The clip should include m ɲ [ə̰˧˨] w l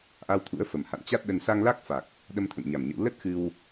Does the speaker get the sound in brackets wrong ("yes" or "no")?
no